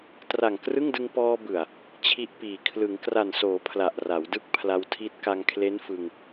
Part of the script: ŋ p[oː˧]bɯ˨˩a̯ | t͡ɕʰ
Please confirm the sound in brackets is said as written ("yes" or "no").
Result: no